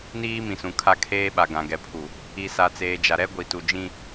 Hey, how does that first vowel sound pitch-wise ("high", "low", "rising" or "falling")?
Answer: high